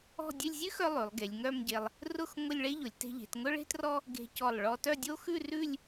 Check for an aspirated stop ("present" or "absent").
absent